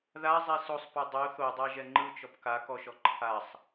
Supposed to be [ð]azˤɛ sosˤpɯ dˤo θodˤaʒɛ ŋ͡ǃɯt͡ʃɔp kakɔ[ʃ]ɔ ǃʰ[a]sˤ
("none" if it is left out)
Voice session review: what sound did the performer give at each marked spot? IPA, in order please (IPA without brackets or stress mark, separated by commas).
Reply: ð, ʃ, a